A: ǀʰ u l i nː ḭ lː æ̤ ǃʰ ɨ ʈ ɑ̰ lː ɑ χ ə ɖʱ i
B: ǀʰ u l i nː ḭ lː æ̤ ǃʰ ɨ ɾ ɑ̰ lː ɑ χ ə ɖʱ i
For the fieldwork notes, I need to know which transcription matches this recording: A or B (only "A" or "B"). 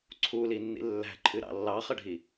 B